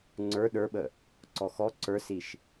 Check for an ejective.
absent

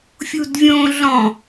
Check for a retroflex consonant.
absent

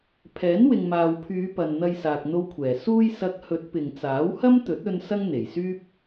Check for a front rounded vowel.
present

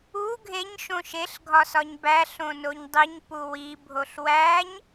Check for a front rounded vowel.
absent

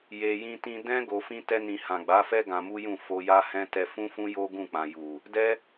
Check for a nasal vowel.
present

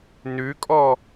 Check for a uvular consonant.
absent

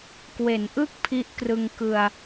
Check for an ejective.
absent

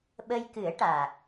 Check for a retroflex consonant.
present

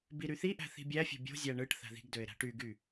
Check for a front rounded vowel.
present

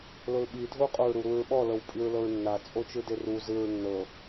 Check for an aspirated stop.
absent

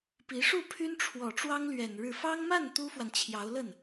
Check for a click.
absent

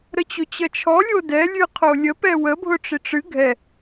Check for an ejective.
absent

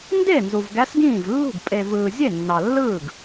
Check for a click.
absent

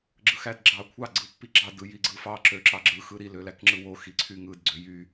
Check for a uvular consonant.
absent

